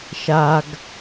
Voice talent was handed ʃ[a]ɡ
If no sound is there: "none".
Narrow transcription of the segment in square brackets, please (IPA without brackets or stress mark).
a